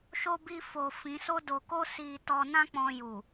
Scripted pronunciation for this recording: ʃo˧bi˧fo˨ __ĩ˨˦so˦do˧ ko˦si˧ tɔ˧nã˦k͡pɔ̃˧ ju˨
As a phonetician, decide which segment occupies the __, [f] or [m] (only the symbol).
f